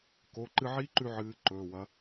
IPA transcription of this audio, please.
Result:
k o˩˧˩ ǃ ɨ˧ ʕ i˦˥ ǃ ʉ˧ ʕ ɨː˨˥ ǃ ɵː˩˧˩ w ɐ˨˥

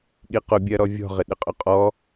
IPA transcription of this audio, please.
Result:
ɠ i q ʊ bʲ ɜ ɾ ɔ vʲ ɔ̤ ʁ ɪ ɗ ɪ qʼ ʊ qʼ ɔ

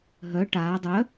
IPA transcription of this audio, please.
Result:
ɦ œ ʈ aː dˤ œ

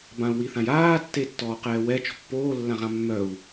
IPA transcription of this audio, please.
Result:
b ã u̯ w i θ ã j aː tː e tː ɔː q ɛː w ɛ t͡ʃ ɔ̤ pː oː lː ã ʁ ã mː œ u̯

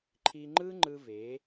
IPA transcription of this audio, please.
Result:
ǃʰ i˧ ŋ͡ǃ ɯ˥ ŋ͡ǃ ɯ˧ v e˩˥

